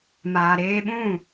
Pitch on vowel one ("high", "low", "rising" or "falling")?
low